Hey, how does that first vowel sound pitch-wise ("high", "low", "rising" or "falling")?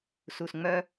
low